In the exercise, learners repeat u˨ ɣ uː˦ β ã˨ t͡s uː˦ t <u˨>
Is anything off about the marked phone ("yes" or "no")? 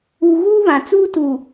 no